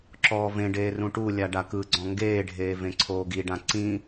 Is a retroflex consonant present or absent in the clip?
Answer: present